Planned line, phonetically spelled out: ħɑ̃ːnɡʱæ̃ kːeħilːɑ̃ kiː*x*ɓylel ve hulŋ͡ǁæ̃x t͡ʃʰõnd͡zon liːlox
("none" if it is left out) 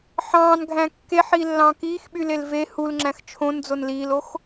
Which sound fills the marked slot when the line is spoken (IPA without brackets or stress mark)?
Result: x